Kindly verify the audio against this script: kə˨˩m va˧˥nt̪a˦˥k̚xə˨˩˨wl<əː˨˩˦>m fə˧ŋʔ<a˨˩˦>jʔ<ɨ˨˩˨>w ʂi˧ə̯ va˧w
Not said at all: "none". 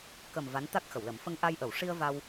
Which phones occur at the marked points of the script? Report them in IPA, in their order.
ə˨˩˦, a˧, ə˨˩˨

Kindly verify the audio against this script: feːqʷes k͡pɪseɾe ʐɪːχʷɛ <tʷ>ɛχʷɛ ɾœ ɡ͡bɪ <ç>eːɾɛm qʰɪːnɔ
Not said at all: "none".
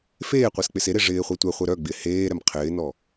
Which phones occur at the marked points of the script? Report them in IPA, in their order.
tʷ, h

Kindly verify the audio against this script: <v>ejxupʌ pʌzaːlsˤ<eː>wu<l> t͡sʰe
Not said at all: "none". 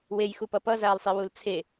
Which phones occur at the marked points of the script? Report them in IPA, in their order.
w, e, l

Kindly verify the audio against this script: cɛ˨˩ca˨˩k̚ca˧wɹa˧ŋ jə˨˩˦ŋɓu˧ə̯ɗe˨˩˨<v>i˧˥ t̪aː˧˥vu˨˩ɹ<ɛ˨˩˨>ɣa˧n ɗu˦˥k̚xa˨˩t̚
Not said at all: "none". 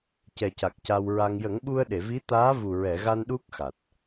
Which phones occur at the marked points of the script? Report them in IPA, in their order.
v, ɛ˨˩˨

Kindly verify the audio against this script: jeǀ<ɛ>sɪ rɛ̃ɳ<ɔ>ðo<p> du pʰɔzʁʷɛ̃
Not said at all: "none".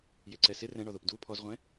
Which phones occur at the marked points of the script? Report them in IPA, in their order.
ɛ, ɔ, p

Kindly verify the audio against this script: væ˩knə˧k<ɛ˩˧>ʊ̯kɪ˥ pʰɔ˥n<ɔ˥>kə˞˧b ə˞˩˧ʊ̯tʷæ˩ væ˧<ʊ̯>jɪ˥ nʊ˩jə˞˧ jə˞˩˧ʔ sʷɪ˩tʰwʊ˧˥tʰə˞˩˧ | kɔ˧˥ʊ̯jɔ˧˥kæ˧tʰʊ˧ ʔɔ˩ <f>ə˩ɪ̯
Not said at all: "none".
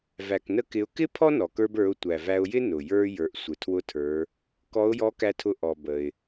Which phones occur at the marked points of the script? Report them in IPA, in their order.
ɪ˩˧, ɔ˩, ʊ̯, b

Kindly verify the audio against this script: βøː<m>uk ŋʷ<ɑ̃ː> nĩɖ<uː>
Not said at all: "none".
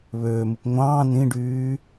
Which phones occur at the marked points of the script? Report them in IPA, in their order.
m, ɑ̃ː, yː

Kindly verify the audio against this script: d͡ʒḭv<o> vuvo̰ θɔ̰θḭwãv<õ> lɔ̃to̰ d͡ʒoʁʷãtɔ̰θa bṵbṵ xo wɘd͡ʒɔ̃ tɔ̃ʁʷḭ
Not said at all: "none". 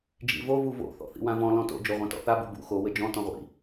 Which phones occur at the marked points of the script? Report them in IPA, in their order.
o, ɔ̃

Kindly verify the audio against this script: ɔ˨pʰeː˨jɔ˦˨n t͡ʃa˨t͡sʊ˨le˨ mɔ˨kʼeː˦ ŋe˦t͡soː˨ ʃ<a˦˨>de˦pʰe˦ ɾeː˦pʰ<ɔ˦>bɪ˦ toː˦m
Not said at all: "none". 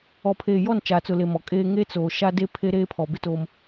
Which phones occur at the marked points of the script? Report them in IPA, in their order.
a˦, ɔ˨

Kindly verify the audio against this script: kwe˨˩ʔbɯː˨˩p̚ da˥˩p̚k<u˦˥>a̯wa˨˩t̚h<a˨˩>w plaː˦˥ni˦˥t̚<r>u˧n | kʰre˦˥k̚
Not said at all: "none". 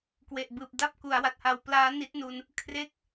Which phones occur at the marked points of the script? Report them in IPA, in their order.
u˩˦, a˨˩, n

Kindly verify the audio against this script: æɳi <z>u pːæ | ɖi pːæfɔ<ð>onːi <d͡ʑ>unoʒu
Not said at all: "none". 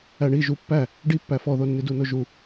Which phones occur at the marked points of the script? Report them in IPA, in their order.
ʒ, ð, d

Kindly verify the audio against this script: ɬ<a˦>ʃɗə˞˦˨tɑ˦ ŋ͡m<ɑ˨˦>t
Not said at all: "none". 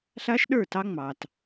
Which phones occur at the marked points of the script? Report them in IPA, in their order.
a˦, ɑ˨

